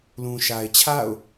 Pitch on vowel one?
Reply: low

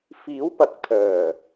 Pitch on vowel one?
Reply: rising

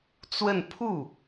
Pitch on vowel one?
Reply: falling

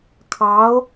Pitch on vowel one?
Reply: rising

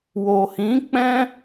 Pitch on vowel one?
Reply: low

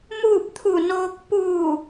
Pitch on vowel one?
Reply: falling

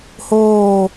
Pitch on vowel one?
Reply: falling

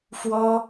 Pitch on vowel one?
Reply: high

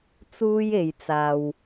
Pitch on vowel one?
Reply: high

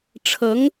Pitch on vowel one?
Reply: rising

